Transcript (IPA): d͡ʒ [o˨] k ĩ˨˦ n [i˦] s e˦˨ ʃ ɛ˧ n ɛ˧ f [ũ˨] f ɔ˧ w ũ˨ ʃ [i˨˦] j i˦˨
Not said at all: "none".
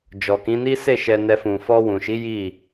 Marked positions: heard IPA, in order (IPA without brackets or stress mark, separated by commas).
ɔ˨, i˦, ũ˨, i˨˦